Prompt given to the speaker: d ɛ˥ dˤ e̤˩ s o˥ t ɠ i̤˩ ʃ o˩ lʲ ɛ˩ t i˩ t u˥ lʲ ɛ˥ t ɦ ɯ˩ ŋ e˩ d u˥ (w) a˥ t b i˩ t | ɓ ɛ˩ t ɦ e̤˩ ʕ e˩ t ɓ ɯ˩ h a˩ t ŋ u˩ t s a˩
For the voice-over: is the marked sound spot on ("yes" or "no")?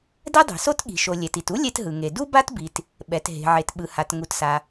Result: no